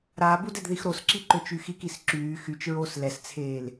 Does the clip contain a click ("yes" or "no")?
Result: yes